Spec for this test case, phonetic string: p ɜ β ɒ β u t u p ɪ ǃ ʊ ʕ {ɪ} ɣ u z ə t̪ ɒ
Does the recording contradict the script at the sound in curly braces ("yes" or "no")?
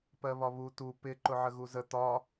yes